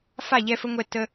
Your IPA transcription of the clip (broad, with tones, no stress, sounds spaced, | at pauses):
f a˦˨ ʎ ɛ˧ f ə˧ ŋʷ ɛ˧ t ə˧